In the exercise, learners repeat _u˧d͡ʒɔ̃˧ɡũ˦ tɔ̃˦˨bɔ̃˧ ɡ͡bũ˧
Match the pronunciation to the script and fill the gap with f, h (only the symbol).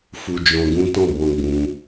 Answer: f